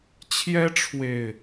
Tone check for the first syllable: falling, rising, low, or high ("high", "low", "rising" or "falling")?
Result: high